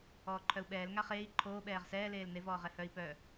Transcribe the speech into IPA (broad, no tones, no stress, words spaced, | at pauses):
ɔːǃʰœu̯ɓɛːl ŋaχeːi̯ ǃʰoː ɓɛːʁsɛː leːlnev ɔːʁɛhœi̯ pœ